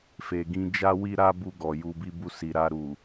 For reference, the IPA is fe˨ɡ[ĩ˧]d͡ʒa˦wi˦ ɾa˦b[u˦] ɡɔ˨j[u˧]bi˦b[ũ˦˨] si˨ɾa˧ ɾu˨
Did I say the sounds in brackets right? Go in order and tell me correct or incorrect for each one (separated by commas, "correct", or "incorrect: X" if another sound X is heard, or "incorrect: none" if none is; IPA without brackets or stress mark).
correct, incorrect: u˧, correct, incorrect: u˦˨